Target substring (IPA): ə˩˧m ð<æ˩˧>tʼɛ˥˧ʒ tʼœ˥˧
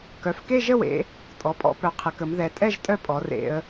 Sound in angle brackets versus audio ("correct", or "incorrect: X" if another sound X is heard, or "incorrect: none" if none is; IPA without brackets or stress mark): incorrect: ɛ˩˧